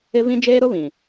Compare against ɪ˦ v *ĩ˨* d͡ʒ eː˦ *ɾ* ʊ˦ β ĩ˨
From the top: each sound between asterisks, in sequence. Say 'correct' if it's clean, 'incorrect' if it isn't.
incorrect, correct

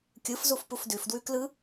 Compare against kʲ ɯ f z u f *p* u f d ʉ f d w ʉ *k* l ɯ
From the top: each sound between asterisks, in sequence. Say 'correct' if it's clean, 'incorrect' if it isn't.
correct, correct

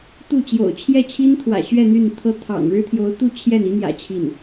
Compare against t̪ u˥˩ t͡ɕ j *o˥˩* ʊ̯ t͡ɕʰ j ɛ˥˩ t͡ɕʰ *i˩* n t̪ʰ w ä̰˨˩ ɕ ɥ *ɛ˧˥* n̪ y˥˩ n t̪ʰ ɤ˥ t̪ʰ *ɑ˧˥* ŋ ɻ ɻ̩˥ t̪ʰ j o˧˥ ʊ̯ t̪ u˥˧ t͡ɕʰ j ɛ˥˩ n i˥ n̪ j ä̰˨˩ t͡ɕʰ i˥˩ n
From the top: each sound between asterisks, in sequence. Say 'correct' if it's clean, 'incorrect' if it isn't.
incorrect, incorrect, incorrect, incorrect

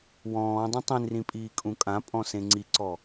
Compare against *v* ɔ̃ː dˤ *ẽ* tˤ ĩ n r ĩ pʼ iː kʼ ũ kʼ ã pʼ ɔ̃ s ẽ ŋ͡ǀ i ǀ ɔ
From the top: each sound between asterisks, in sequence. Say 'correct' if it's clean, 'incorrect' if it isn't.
incorrect, correct

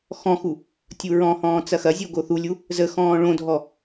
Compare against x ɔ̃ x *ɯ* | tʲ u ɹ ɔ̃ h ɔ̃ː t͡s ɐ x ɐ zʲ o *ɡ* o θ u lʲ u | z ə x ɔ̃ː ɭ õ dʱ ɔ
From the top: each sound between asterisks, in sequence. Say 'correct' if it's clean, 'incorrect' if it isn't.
incorrect, correct

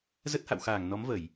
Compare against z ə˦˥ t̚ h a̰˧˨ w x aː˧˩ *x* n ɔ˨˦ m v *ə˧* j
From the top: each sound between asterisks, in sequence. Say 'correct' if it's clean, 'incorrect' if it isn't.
incorrect, incorrect

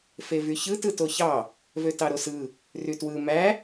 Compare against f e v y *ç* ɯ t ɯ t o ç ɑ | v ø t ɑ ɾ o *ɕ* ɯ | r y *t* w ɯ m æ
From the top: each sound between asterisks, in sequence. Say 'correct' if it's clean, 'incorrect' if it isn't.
correct, incorrect, correct

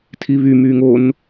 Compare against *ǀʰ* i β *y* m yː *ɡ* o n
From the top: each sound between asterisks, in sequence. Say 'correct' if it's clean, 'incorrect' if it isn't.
incorrect, correct, incorrect

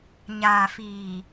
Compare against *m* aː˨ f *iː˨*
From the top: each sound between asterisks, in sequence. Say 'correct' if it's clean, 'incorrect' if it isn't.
incorrect, correct

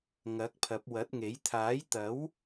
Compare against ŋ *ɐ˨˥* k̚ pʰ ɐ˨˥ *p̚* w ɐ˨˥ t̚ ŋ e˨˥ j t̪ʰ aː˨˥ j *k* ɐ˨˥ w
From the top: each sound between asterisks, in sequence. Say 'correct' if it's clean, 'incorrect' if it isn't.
correct, correct, incorrect

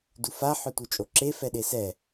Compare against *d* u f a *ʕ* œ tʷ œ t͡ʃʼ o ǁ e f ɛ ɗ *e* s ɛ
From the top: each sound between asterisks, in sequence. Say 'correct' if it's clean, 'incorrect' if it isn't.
correct, incorrect, correct

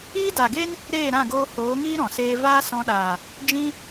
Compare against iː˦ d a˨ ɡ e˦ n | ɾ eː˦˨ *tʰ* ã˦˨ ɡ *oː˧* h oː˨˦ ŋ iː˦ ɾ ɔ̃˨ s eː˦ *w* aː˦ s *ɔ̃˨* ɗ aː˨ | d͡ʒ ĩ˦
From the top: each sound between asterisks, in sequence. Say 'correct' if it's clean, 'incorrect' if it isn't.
incorrect, correct, incorrect, incorrect

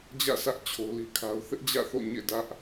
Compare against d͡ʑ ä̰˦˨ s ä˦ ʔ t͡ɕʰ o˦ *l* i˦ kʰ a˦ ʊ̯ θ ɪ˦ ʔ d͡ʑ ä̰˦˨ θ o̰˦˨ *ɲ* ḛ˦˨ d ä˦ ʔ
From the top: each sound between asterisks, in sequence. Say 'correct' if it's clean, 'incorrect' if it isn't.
correct, correct

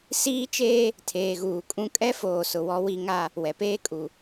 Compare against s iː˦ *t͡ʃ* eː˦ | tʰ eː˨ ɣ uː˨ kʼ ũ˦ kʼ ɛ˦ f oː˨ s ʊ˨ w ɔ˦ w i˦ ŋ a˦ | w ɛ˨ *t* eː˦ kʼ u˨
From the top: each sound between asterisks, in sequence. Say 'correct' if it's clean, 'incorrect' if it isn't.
correct, incorrect

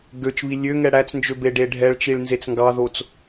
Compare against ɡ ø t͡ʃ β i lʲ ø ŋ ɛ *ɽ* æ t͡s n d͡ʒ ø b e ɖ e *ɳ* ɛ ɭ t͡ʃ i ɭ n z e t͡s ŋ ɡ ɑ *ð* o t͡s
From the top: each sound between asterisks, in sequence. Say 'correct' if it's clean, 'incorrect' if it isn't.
correct, incorrect, correct

